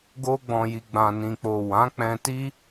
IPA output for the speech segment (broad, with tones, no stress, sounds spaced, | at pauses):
ɡ o˦ ɡ͡b ɔ̃˧ j i˧ ɡ͡b ã˨ n ĩ˨ k͡p o˨ w ã˨˦ k͡p ɛ̃˧ t i˦